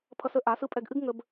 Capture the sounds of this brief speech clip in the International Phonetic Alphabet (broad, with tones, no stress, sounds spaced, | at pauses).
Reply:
pʰ ʌ˧ s ə˦ ʔ a˨˦ s ɯ˦ pʼ ɛ˧ ɡ ʔ ɨ˦ ɡ ŋ ə˦ b